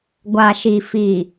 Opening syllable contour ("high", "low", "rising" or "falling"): low